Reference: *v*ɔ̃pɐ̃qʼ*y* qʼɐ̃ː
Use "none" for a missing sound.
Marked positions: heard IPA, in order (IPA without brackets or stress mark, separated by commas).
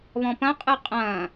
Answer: β, ɨ